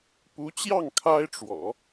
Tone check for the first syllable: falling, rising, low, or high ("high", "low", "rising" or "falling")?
rising